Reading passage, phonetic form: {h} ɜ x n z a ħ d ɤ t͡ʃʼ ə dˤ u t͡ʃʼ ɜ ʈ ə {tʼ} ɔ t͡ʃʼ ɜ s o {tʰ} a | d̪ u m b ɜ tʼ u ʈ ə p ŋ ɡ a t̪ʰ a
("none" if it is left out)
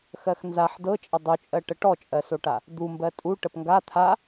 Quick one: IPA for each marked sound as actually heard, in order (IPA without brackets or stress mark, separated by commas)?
x, ʈ, ʈ